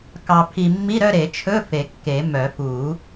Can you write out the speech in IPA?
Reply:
kɑ˧pʰi˧ mːi˧˥˧ɾœ˥˧ɾe˨˩˦ t͡ʃʰɵ˧˥˧ fe˨˩˦kːe˨˩˦mœ˨˩˦ fu˨˩˦

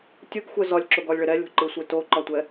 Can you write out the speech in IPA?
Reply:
tʲɯɡxʷɛ zɒlʲǁoɡɒlʲɭɪ ɾɛlʲo̤ǃɯsʷe toǃɒtʷɛ

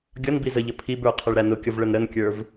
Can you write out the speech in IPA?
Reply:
ɡʲʌn bizəʎə pʰibə˞ qʰʌɭɾænʊkʲʌv ɭənɾənkʲə˞v

